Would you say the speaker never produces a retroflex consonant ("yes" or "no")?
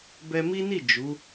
yes